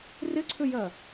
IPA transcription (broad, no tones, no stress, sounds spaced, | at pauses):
r ɪ ǀʰ ʏ j ɜ